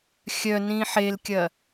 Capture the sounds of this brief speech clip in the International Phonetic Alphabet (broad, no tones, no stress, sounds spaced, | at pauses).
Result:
xʲ œ n ĩ ħ e l kʲ ɐ